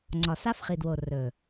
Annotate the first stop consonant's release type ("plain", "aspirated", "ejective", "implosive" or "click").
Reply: click